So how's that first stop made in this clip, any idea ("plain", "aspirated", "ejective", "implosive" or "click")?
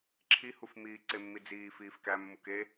click